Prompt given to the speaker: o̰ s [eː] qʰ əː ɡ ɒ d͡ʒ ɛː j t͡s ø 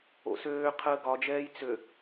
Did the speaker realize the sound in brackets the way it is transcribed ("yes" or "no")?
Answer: no